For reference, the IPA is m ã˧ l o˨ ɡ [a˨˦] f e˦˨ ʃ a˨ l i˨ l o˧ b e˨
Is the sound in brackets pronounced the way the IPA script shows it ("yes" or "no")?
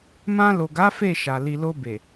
yes